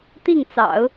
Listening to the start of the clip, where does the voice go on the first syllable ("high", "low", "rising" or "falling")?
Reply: falling